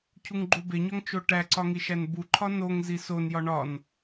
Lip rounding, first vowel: rounded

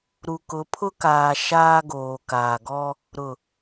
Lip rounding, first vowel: rounded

